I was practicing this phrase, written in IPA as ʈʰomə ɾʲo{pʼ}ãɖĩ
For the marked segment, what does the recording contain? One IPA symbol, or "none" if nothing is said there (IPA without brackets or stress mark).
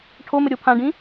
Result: pʰ